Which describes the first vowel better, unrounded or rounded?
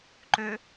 rounded